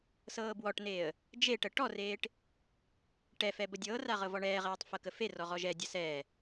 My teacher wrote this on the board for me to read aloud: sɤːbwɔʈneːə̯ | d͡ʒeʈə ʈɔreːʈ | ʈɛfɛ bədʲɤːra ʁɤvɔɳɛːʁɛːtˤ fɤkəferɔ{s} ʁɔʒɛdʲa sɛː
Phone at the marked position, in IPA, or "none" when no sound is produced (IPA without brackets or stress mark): none